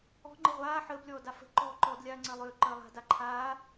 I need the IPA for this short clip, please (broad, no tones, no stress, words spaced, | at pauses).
ɔ̤ ŋ͡ǃəʁʷaː ħəːblʲɔːda fə̤ ǃɔːǃɔd lʲaːŋ͡ǀəːlˠʏː ǃəːlˠa̤ daǃʰaː